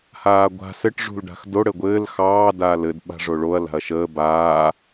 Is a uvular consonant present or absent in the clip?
absent